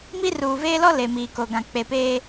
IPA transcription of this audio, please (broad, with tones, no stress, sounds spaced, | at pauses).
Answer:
m i˦ r uː˨ v eː˦ l ɔ˦ l e˨ m iː˨ k o˨ ɡ ã˨ k͡p e˨ p eː˦